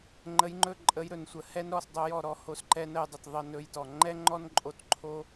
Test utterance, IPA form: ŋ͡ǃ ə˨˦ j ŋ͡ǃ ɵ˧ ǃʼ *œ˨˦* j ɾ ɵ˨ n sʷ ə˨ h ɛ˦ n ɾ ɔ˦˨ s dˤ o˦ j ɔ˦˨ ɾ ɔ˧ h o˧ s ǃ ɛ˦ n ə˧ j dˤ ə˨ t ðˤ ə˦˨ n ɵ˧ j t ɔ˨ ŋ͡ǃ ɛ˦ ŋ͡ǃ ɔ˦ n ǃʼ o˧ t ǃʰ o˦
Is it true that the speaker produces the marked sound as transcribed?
no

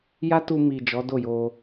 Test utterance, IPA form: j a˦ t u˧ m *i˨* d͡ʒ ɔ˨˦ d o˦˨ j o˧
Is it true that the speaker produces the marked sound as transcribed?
yes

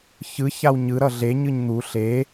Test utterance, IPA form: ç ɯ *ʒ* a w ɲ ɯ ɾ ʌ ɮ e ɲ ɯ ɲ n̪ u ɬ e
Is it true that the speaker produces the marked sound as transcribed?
no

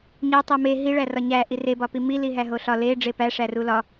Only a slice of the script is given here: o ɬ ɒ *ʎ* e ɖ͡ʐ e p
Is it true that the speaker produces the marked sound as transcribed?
no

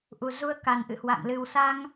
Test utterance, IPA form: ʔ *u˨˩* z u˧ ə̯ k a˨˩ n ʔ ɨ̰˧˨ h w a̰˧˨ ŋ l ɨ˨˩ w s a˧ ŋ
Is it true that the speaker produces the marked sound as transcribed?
yes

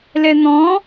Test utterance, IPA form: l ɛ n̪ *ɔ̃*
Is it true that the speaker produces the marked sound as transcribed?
yes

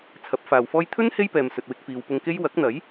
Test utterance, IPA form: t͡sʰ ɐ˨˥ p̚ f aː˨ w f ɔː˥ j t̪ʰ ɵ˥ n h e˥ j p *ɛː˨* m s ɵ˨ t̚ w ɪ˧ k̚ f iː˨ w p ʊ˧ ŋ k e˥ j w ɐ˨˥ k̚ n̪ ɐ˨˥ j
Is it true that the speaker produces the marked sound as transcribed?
yes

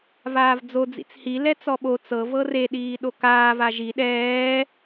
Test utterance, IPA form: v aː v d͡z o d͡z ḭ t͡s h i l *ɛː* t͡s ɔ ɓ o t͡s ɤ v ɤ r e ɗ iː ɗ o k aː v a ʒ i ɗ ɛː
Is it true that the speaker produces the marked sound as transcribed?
no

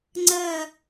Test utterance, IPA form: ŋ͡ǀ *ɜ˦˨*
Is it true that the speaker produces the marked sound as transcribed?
yes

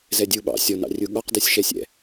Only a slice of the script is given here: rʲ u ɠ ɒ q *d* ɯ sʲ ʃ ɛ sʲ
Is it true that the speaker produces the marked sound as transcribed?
yes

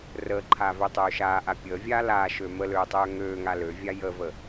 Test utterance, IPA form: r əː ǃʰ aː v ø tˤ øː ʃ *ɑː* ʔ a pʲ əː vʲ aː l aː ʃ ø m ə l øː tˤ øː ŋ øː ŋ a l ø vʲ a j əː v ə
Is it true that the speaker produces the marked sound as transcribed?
no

